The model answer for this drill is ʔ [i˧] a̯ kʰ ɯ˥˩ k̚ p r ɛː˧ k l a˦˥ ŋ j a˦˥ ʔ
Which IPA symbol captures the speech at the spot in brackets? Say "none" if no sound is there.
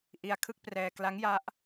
i˧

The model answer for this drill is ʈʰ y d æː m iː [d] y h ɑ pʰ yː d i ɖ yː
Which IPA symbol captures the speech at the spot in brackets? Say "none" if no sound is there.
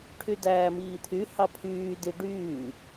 t̪ʰ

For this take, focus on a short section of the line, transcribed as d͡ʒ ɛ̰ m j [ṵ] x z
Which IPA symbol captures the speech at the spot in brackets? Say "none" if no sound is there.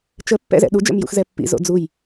ṵ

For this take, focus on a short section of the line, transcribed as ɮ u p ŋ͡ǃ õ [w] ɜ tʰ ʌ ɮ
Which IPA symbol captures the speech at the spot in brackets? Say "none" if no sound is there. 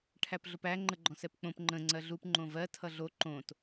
v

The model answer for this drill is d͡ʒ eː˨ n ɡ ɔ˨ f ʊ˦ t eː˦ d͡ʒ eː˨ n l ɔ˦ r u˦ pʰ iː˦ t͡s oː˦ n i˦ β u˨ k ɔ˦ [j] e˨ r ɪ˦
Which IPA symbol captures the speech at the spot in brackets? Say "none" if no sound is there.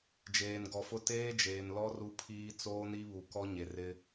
ɲ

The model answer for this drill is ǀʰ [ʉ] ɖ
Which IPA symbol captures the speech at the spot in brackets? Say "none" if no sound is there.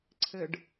ɘ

